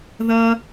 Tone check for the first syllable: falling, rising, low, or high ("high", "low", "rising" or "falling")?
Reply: high